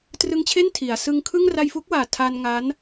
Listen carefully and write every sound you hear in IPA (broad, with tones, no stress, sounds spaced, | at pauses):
t r ɯ˧ ŋ t͡ɕʰ e˥˩ n tʰ i˩˦ a̯ s ɯ˧ ŋ kʰ ɯ˥˩ ŋ r a˧ j f u˦˥ k̚ w aː˨˩ tʰ a˧ n ŋ a˦˥ n